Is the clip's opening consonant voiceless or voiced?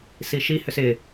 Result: voiceless